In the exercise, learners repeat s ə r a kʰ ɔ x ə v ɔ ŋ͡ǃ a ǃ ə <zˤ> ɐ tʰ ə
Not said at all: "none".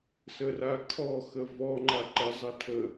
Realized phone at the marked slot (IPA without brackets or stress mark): zˤ